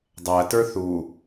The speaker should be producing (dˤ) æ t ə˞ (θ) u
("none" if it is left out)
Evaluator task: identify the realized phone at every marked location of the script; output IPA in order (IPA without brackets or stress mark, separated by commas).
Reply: dˤ, θ